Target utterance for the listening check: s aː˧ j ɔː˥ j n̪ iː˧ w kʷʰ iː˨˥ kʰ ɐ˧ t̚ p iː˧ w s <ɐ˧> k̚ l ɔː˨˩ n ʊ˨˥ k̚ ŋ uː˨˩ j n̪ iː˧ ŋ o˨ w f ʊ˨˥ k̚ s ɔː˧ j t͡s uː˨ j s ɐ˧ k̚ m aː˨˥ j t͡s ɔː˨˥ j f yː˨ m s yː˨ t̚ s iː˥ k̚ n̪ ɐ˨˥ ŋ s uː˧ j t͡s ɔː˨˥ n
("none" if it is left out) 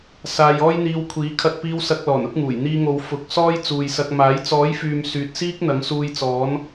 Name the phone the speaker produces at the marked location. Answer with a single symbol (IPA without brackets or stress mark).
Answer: ɐ˧